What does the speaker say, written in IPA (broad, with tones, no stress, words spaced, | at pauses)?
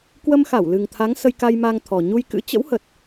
kwə˧mxa˧˩w lɨ˨˩ŋt̪ʰa˨˦ŋ sə˧jka˧jma˧ŋ t̪ʰɔ˨˩ ɲu˧jkɨ̰˧˥ t͡ɕə̰˧˥whə˨˩t̚